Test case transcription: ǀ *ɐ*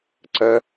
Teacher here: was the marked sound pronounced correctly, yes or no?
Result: yes